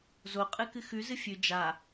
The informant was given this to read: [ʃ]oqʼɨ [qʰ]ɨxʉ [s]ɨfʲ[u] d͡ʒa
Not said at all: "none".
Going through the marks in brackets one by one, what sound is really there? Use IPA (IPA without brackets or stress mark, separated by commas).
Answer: z, k, z, ʉ